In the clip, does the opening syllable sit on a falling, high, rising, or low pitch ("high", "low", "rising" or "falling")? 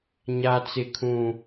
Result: high